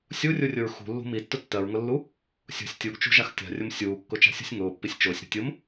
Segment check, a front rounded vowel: absent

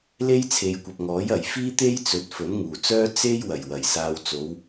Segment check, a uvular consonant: absent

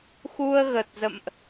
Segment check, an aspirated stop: absent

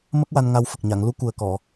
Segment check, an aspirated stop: absent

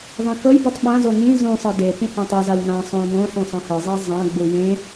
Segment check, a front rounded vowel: absent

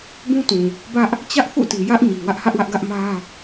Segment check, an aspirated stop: absent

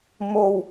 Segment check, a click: absent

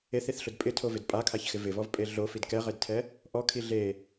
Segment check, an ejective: present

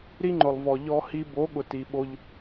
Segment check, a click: present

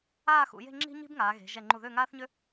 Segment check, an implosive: absent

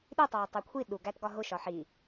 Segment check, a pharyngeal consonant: present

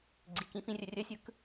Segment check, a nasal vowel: present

